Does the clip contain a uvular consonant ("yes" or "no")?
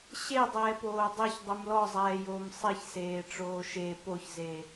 no